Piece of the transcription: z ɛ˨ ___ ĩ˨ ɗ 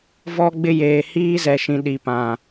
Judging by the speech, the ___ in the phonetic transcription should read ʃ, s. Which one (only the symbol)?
ʃ